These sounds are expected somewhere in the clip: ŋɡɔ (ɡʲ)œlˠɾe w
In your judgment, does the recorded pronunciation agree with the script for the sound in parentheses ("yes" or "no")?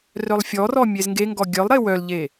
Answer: yes